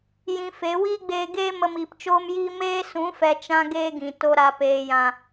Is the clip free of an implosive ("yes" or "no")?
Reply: yes